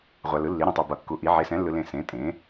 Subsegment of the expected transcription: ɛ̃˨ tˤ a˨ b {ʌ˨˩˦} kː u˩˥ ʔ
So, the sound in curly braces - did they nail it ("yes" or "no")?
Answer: yes